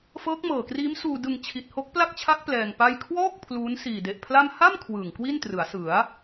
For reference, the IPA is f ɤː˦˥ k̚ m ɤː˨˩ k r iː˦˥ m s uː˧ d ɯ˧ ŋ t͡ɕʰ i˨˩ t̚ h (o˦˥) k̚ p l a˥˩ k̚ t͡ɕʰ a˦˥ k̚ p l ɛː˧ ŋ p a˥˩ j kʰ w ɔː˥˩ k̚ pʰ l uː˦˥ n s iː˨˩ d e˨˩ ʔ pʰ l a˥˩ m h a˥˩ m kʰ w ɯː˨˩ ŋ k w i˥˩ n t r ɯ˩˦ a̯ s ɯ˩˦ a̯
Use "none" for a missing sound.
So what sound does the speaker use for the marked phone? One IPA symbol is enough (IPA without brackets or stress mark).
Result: o˦˥